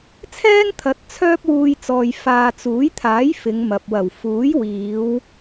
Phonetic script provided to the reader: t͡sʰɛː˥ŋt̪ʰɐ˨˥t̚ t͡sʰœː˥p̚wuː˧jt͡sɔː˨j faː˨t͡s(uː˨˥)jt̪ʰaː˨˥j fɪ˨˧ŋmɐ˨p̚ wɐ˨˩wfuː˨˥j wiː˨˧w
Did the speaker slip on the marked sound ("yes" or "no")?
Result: no